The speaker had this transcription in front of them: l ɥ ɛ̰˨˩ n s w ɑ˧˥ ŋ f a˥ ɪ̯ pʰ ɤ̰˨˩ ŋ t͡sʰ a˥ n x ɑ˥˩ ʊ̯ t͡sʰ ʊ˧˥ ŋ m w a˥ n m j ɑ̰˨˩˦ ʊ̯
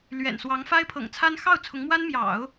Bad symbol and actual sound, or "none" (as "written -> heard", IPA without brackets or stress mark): none